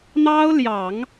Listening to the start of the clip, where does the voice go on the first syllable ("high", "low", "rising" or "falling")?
high